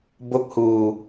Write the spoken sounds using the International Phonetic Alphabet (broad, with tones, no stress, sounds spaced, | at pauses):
b o˥˩ k̚ h uː˧